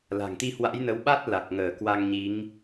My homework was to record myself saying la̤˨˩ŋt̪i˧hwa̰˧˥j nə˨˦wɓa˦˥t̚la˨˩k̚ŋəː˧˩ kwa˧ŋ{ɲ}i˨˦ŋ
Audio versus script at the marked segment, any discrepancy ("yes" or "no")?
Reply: no